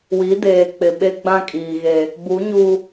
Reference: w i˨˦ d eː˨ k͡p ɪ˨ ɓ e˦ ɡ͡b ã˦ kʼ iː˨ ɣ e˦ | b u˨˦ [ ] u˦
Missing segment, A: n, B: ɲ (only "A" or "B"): B